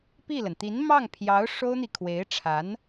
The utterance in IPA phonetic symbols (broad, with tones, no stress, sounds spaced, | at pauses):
p i˥˩ l ə˩ n t̪ i˧˥ n m ɑ˥˩ ŋ pʰ j ɑ˧˥ ʊ̯ ʂ o˥ ʊ̯ n̪ i˨ kʰ w e˧˥ ɪ̯ ʈ͡ʂʰ a˧˥ n